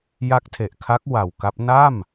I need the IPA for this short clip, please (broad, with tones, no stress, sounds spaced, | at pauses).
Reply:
j a˦˥ k̚ tʰ e˨˩ ʔ kʰ a˦˥ k̚ w a˨˩ w k a˦˥ p̚ n a˥˩ m